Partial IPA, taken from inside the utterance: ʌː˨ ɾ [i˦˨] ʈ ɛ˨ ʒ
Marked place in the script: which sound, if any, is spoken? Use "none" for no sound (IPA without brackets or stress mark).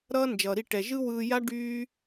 i˦˨